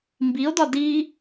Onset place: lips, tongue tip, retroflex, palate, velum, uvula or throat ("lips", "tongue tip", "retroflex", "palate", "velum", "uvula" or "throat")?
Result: lips